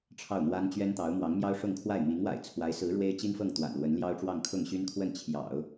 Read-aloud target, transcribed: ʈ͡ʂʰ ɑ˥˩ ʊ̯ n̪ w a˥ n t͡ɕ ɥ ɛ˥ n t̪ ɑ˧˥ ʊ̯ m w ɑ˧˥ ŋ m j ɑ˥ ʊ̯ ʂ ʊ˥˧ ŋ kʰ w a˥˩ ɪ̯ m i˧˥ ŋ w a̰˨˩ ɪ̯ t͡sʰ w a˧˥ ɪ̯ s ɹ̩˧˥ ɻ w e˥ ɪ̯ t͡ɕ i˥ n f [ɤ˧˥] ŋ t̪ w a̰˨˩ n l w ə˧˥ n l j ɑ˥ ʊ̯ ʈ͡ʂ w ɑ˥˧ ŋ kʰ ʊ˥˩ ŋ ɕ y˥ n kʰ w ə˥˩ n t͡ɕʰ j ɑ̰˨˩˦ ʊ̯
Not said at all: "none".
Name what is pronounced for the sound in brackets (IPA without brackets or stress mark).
ɤ˥˩